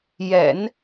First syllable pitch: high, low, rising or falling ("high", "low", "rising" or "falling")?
low